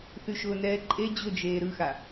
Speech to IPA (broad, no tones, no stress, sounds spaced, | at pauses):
θ y ʃ ʊː n ɛː ǃʼ e d͡ʑ ʊ d͡ʒ eː ɾ ɯ x a